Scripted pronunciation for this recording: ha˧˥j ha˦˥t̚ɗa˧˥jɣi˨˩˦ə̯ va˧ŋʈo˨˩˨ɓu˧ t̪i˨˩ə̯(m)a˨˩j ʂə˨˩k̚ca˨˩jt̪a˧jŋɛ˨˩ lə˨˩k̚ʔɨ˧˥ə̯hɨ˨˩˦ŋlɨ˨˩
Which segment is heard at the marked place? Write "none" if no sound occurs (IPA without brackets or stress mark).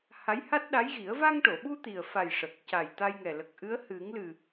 f